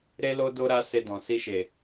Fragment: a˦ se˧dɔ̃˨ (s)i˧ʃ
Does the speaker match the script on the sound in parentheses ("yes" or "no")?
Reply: yes